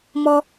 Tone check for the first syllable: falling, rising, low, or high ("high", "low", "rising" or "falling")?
high